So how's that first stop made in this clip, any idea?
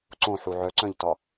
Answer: click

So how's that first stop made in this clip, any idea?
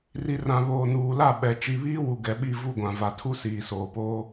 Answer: implosive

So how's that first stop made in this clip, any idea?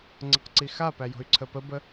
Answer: click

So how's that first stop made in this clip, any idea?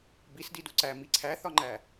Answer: plain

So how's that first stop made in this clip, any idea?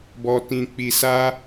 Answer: plain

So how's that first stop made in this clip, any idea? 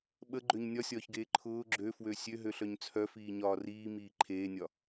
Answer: implosive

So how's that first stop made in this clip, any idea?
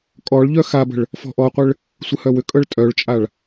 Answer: ejective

